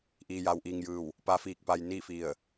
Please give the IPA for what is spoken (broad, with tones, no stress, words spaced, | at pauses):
ʔiː˧ja˧wʔiː˧ŋjɯː˧˩w | pa˧˥fiː˧k̚pa˧j ni˥˨fi˧˩ə̯